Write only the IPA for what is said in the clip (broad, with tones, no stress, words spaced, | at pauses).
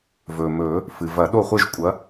vɵː˩mɵː˨˩˦ | fɨ˩ vɐ˨˩˦ɗo˥˩χʷe˥˧ʒ kʷʼɐ˨˥